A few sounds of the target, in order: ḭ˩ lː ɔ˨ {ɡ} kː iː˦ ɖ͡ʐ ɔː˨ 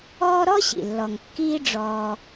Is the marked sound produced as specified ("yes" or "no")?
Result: no